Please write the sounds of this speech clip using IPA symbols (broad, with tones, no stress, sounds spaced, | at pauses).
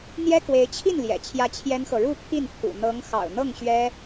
n̪ j ɛ˥ k w e˧˥ ɪ̯ t͡ɕʰ i˥˩ n l j ɛ̰˨˩ t͡ɕʰ j ä˥˩ t͡ɕʰ j ɛ˥ n x ɤ˨ ɻ u˥˧ pʰ i˥˩ n pʰ ṵ˨˩ n̪ ɤ˧˥ ŋ x ɑ̰˨˩ ʊ̯ n̪ ɤ˥˩ ŋ ɕ ɥ ɛ˥